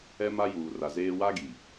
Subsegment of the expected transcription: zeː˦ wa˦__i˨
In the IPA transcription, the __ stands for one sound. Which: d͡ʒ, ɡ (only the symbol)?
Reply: ɡ